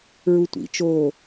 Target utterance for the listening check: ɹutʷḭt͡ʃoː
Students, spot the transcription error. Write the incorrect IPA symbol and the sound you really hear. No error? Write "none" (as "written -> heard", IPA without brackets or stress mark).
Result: none